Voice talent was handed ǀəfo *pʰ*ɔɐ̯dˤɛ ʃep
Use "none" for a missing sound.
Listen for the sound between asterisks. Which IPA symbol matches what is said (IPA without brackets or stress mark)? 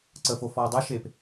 f